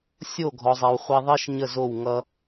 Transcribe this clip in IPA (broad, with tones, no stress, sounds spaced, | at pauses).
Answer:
sʲ o˦˨ ɡʱ ɔ˨ zˤ ɛ˨ w χʷ ɛ˧ ðˤ i˦ ʃ ɲ ə˦˨ z o˦˨ w ŋ ʌ˧